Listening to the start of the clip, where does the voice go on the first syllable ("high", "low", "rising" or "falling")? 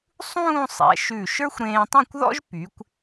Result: falling